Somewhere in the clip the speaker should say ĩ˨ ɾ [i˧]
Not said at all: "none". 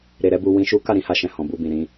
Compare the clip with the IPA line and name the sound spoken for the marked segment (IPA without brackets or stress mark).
ĩ˧